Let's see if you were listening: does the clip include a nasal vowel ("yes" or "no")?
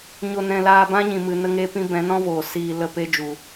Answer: yes